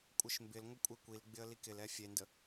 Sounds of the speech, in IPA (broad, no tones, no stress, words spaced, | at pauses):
kʷʼɪʃmbɪlŋʷə kʷʼekʷilɡ͡bɪə̯ likɪlɛ fʲendə